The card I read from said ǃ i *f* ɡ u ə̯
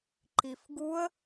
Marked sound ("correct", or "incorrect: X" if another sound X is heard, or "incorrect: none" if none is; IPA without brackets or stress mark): correct